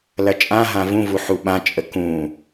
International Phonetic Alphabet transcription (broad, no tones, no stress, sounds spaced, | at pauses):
l ɐ t͡ʃʼ ã ɦ ã v ũ v u ħ u ɓ ã t͡ʃʼ ə k ũ